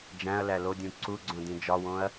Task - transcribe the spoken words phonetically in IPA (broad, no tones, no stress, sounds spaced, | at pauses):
d͡ʒ æ̃ ɐ̯ l æ l o dʲ ũ ǀ u ɡ͡ǀ õ d ĩ d͡ʒ ɒ w õ ɐ̯